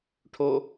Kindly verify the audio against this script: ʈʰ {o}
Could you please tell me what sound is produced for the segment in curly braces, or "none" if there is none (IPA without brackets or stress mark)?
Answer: o